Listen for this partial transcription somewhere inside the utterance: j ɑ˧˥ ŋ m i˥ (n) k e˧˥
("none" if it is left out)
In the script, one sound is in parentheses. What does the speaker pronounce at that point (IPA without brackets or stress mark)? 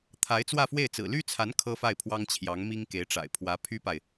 ŋ